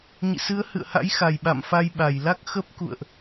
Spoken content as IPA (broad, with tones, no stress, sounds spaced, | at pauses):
ɲ ḭ˧˨ s ɨ˨˦ ə̯ h ɨ̰˧˨ ə̯ h a̰˧˥ j x a˨˩ j ɓ a̰˧˨ m f a˧ j ɓ a˧˩ j l a˦˥ k̚ x ə˦˥ p̚ k ṵ˧˨ ə̯ ʔ